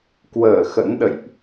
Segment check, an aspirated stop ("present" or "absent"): absent